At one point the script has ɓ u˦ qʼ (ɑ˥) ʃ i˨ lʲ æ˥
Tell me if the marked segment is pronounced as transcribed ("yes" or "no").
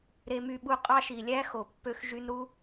yes